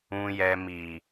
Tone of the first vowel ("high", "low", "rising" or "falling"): low